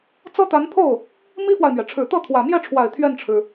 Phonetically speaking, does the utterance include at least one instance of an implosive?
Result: no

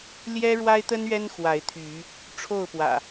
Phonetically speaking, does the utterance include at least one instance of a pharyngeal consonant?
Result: no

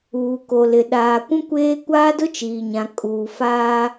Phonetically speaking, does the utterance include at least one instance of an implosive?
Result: yes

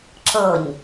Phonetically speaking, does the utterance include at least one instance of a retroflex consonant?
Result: no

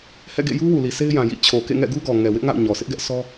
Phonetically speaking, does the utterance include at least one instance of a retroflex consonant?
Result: no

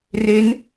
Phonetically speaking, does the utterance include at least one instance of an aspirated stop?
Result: no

